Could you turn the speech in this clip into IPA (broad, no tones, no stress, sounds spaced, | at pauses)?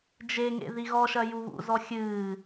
d͡ʒ e ŋ ḛ ð i ɣ ɔ ʃ ɐ j u β ṵ z ɔ xʲ ɨː